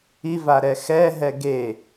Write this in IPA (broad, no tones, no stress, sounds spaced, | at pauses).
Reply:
i v a ɾ ɛ x ɛ ɦ ɛ ɡ e